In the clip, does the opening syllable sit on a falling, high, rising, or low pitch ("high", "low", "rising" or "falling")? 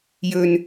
low